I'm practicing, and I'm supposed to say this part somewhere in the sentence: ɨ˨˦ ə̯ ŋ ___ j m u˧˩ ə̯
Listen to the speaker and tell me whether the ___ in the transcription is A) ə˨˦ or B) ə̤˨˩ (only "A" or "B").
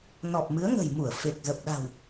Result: B